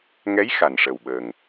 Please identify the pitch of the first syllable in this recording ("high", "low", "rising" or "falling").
rising